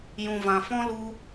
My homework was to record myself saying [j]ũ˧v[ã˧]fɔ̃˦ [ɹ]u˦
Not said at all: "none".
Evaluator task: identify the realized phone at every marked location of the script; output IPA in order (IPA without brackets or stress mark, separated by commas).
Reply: j, ã˧, l